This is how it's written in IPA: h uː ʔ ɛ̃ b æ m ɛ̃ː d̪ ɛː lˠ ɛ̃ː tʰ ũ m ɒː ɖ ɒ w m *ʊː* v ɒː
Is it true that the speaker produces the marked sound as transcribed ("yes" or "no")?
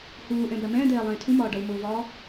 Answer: yes